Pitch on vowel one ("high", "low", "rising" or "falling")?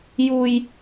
low